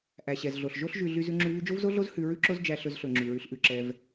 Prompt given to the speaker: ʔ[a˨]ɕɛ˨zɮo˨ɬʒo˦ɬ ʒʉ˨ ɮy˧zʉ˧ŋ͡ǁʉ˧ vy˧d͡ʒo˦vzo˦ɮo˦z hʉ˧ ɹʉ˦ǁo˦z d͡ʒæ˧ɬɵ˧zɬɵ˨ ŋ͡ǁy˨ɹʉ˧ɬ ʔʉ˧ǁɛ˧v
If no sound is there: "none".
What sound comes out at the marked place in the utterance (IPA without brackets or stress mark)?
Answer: æ˨